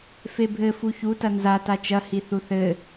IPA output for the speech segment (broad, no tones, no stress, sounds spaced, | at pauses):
f e bʱ ɘ f u ç u t ɐ n z a t a t͡ʃ ɐ h i θ u θ ɘ